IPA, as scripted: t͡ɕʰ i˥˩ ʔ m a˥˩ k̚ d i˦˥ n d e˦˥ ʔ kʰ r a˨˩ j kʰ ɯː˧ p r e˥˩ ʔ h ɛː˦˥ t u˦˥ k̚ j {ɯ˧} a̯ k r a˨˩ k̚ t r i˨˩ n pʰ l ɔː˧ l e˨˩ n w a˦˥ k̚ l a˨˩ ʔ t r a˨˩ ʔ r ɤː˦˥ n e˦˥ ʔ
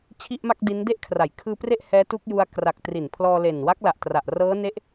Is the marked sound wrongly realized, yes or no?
yes